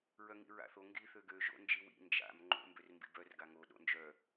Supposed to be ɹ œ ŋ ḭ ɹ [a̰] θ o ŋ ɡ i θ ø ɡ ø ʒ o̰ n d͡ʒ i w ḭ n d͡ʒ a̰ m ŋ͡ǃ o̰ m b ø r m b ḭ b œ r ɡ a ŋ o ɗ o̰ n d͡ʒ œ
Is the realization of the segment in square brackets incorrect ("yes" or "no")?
no